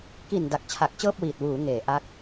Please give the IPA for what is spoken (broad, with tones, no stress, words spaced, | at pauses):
ki˨˩n da˨˩k̚t͡ɕʰa˨˩k̚t͡ɕɤː˥˩p̚wiː˨˩t̚ wuː˩˦ ŋeː˩˦ ʔa˦˥k̚